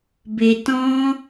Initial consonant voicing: voiced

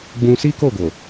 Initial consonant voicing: voiced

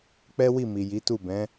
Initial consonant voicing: voiceless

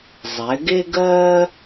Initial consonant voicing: voiced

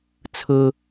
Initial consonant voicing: voiceless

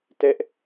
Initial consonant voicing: voiceless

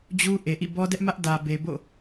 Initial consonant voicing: voiced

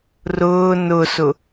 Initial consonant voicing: voiced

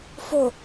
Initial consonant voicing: voiceless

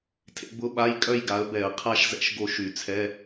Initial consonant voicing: voiceless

